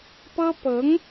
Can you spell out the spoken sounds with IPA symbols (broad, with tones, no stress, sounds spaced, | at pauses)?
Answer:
p ɤ˥ p ɤ˧˥ ŋ